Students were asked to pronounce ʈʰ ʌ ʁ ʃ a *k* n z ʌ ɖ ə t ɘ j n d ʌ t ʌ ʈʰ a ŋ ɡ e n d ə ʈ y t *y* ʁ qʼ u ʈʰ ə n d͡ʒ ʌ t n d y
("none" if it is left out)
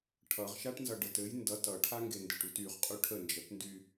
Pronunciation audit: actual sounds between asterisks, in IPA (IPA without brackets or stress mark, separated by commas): ʈ, y